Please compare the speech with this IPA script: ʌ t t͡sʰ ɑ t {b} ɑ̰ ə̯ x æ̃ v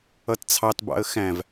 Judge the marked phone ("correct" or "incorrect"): correct